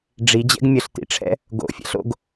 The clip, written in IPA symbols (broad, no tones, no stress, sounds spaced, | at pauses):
ɖ͡ʐ i d͡ʑ ɛ̰ ɡ mʲ ə ɬ t ḭ ʈ͡ʂʰ ɛ̰ | ɡ o̰ fʲ ɛ̰ ɬ o̰ ɡ